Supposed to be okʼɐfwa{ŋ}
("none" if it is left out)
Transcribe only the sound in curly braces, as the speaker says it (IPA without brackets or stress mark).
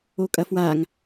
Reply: ŋ